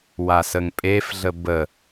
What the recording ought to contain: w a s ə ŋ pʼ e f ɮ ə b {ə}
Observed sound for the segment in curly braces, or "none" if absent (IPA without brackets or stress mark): ə